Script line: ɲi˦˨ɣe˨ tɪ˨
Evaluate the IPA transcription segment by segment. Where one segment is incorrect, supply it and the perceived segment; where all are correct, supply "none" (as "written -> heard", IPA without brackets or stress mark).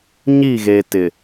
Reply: none